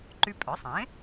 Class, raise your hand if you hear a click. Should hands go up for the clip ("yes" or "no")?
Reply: yes